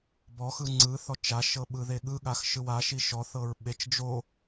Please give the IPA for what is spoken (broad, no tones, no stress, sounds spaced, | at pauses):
b ɔ x ɯ ŋ͡ǀ ɯ θ ɔ t͡ʃ a ʃ ɤ ɓ ɯ ð e ɠ ɯ ɠ a x ʃ ɯ w a ʃ i ʃ ɔ θ ɤ ɹ ɓ e t͡ʃ d͡ʒ o